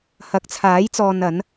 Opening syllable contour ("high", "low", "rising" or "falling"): rising